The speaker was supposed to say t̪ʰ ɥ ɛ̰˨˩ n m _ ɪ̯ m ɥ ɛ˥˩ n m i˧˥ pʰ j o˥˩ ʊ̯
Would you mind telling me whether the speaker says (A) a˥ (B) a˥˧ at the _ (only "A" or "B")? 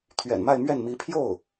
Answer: B